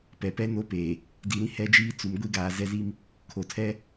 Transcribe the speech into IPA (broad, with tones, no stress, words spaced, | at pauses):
pɛ˨pɛ˦ no˦peː˨ | di˨ɾĩ˦ hɛ˦d͡ʒiː˦ t͡su˨m ɡʷi˦ɡaː˨zɛ˦zi˦m | kʰo˨tʰɛ˦